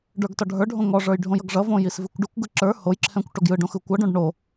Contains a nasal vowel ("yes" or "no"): yes